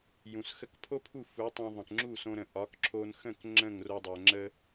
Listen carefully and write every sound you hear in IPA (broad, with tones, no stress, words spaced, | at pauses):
jũ˩sxə˧kpʰo˥pʰu˥˩ fu˩˥tˤɛ̃˧ ðˤə̃˩kŋ͡ǁu˥˩ sõ˧ɾə̃˩ ʔɒ˩˥kǁʰo˧nxə̃˥˩k ŋ͡ǁə̃˥˩ŋro˧dˤɛ˩ ŋ͡ǁə˧